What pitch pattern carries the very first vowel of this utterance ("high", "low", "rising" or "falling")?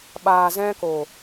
low